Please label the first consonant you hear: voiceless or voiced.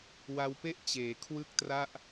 voiced